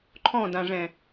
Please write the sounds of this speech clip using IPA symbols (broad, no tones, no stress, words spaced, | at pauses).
ǃʰɔ̃dãʐɛ̃